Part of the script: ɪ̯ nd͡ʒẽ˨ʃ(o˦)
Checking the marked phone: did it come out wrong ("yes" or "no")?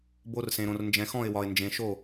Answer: yes